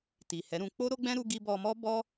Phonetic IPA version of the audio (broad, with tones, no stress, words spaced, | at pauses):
ti˨hɛ˨˦ɾũ˧ k͡po˦ɾo˦ɡ͡bɛ̃˦ ɾu˧ɡi˧ bɔ˧mɔ˦ bɔ˦